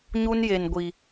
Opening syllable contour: high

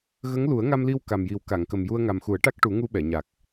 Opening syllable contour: rising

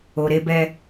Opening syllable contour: low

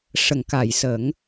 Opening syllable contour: low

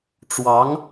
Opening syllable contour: rising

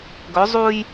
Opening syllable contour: rising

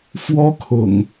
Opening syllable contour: high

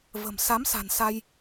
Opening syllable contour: low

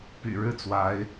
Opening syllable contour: low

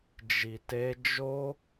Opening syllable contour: low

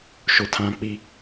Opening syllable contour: low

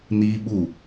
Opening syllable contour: high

